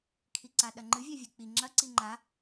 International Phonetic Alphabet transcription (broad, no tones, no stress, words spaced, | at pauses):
kʰiǀaɗɐŋ͡ǃɨ vʲavʲɨk͡pi ŋ͡ǁɐ ǀiŋ͡ǃa